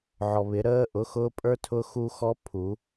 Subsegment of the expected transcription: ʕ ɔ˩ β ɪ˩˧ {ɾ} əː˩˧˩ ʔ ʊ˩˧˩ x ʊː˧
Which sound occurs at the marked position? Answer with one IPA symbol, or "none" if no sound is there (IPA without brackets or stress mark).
ɾ